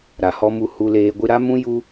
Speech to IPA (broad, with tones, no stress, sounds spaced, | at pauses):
ɾ a˨ h ɔ˧ m u˧ h u˧ l eː˧ ɡʷ ɨ˧ ɾ a˦ m ũ˦ j u˦